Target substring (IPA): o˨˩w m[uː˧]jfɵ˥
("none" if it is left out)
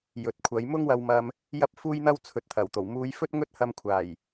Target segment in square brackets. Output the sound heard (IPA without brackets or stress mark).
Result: uː˧